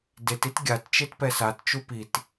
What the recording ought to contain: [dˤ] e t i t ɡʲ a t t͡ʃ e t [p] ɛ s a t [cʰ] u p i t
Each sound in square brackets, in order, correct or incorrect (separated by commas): incorrect, correct, incorrect